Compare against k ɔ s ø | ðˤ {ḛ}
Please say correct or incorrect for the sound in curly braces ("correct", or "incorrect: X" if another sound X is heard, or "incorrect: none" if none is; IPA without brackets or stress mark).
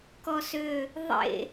correct